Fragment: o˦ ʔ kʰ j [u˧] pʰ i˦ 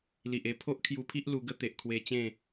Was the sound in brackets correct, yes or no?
yes